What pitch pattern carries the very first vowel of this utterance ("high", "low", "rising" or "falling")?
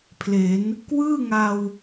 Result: rising